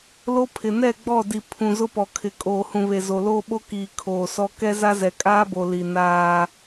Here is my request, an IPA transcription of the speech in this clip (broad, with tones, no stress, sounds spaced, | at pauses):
l o˦ pʰ ɪ˨ n ɛ˦˨ ɡ͡b ɔ˦˨ d i˨ pʰ ũ˨ z ʊ˦ p ɔ˨ kʰ ɪ˨ kʼ oː˨ h ũ˨ β e˨ z o˨ l oː˦ ɓ o˦ k iː˨ kʰ oː˨ s ɔ˦ k ɛ˦ z a˦ z ɛ˨ kʼ aː˦ b o˨ l i˨ n aː˦